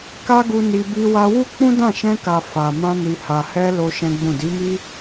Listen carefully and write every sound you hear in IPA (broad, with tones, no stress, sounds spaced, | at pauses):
k a˦ ɡ u˧ n i˧ b i˧ w a˧ w u˦ k͡p ũ˦ d ã˦˨ ʃ ɛ̃˧ k a˨ f a˨ m ã˧ n i˨ h a˨ h ɛ˧ l o˦ ʃ ɛ̃˦ ɡ͡b ũ˦˨ d i˨˦ m i˦